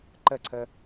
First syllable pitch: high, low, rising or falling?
falling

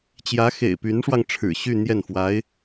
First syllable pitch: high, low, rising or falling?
rising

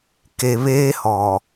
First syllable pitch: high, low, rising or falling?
low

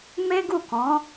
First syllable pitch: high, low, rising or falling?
high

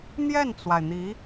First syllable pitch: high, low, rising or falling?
falling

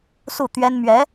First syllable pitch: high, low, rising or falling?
falling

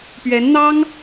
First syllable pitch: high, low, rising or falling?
rising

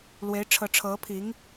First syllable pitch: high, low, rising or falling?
rising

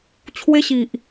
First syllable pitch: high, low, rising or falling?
high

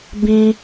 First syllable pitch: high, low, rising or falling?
high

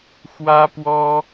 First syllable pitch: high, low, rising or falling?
high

